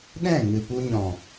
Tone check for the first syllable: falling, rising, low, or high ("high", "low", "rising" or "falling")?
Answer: falling